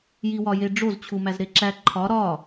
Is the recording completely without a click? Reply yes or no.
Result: no